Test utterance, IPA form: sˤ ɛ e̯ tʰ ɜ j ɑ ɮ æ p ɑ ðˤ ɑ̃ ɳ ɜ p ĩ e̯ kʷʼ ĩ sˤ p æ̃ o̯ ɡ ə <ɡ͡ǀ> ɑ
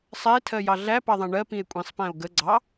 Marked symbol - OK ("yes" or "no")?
yes